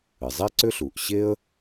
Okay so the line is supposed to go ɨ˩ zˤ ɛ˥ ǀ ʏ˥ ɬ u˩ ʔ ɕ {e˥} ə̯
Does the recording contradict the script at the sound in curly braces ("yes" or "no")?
no